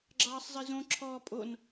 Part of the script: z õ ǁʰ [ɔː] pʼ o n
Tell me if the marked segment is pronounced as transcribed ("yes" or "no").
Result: yes